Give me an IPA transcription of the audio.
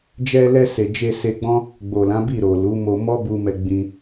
d͡ʒɛ˧lɛ˧se˨ d͡ʒe˧se˧ɡ͡bɔ̃˦ | ɡ͡bo˨lã˨˦bi˦˨ ɾo˨lu˨˦ mo˧mɔ˦bu˧mɛ˧ ɡ͡bĩ˧

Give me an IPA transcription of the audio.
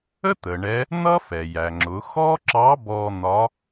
ə˥t̪ə˩ ɳɛ˧˥ | n̪ʌ˥fɛ˩jæ˩ŋ͡ǁʊ˩˧ xɔ˥ǁɑ˧˥bɔ˧ n̪ɒ˧˥

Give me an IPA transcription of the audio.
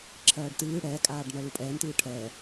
ǁʰɜːɖtɨː ɽɛːkʼaːɖnɜ lupʼɛːntɨː ʈʰɛ

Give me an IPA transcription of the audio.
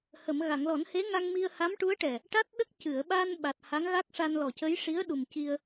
hə˨˩˨m ɣa˨˩˨ŋlɔ˨˩˦nhe˧˥ŋa˧ŋ mi˧ə̯ha˧˥mʈu˧˥ə̯ʈɛ˨˩ | ʈa˦˥t̚ɗə˦˥k̚ cɨ˨˩˨ə̯ɓa˧n ɓa˨˩t̚ ha˧˥ŋɣa˦˥k̚ʂa˧nlɔ˨˩ cə˧˥jʂi˧˥ə̯ɗu˨˩m ci˧ə̯

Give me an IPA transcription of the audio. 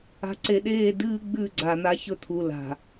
a̤˨ǀe˨ɗeː˦˨ dɨː˦ɡ͡bʉ˦˨ ɡ͡ǀa˨n̪a˦çɵ˦ t̪ʰu˨la̤˨

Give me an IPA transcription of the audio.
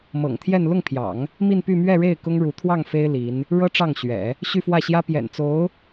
mɤ̰˨˩ŋt̪ʰjɛ˥˧n lʊ˥˩ŋpʰjɑ̰˨˩˦ŋ | mi˥˧npy˥˧ mɥɛ˥˧ɻe˥˩ɪ̯ kʊ˥ŋɻu˧˥ t̪ʰwɑ˥˩ŋfe˥ɪ̯ li˧˥n | ɻɤ˥ ʈ͡ʂɑ˥˩ŋɕɥɛ̰˨˩˦ | ɕy˥˧fwä˥˩ɕjä˥ pjɛ̰˨˩n t͡so˧˥ʊ̯

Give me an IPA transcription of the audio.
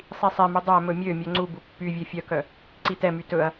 sˤisˤɛmu dˤæ mɵmʲømʲœ ŋ͡ǀubu pːyvʲe fʲœkœ | ǀitɛmy tɵɐ̯

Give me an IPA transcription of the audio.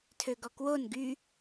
tʰøɡɔkwon ɡy

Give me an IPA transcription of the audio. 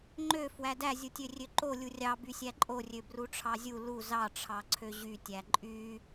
ŋ͡ǃø fwædæ zʲutʲørʲøǃo lʲurʲɑ bysʲæǃʼorʲø bruʈ͡ʂʰɑzʲu lu zɑʈ͡ʂʰɑ ǀʰøʑytʲæ ǃʼy

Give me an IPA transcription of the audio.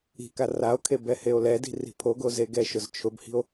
i̤ka rao̯kʰe bɛheo̯lɛdi̤ ri̤pʰoɡo zeɡɛʃʊz t͡ʃʰʊbhi̤o̯

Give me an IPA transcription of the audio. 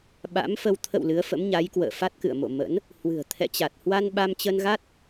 ɓa̰˧˥mfə˧w t̪ʰə̰˧˨w lɨ˨˦ə̯fə̰˧˥mɲa˨˦jkwə̰ː˧˨ fa˦˥t̚kɨ̰˧˨ə̯mo̰˧˨ mə̰˧˥n | hwɨ̤˨˩ə̯ t̪ʰɛ̰˧˨t͡ɕa˨˩t̚hwa˧n ɓa˧mt͡ɕə˧nɣa˦˥t̚

